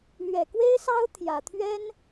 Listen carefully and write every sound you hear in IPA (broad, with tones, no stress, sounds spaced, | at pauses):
l ɥ ɛ˨˩ k w e˥ ɪ̯ s ɑ˥ ʊ̯ t̪ʰ j ä˨˩ t̪ʰ ɥ ɛ˥ n